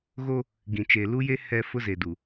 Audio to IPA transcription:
ɣo˦ | ɡĩ˨t͡ʃeː˨lu˦je˦ hɛ˦ fʊ˦ze˨du˨

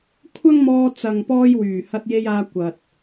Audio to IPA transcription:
kʷʰɐ˥ŋmɔː˧ t͡sɐ˨ŋpɔː˧j wyː˨˩hɐ˧t̚je˧jaː˧ kʷɐ˨t̚

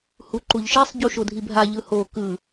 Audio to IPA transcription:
huǃuʎʃisˤ ɟuʃodʱibʱa ʎɯho kɯ

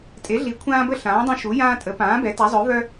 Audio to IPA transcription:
tʼe˩˥ɮi˩˥kʷʰãː˦bə˦ ɬãː˩˥dˤœ̃˦ ʃu˩˥jãː˦tʼə˩˥ pãː˩˥bɛ˩˥ ta˩˥zˤœ˩˥vœ˦

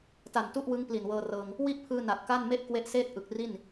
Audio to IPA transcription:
ta˨˩ntu˥˩ʔwɯ˦˥ŋ pli˨˩nwɤː˧rɤː˧ŋ | wi˥˩ʔpʰɯː˧ na˨˩t̚ka˥˩n me˥˩ʔkwe˦˥ʔseː˥˩t̚ʔɯ˨˩k̚ ri˥˩n

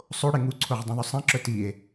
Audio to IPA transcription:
sˤoɽe ŋuǀʰoʁdˤũðˤy sˤɛ̃ǁœ tie̯

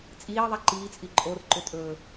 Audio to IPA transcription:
t͡sʼiːðˤɛ ǃiːt͡sʼi ǃʼorǃʏ tʼɵː

